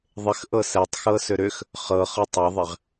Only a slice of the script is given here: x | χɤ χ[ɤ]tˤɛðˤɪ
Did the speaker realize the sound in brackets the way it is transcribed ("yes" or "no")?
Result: yes